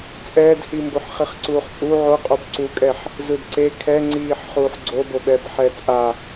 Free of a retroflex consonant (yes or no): yes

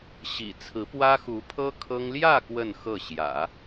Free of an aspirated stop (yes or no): no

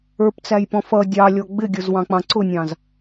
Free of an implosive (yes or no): yes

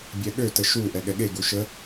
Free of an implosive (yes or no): no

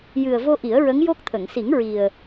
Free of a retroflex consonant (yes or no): yes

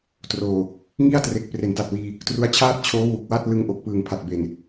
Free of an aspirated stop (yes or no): no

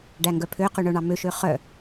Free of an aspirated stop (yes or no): no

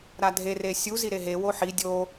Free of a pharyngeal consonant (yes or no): no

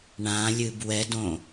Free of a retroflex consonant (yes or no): no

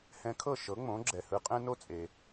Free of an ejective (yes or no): no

